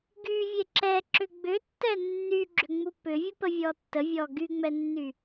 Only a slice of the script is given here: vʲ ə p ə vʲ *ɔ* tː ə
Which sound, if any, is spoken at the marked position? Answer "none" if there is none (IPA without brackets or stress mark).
ɔ